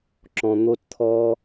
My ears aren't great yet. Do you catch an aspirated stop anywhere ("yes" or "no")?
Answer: yes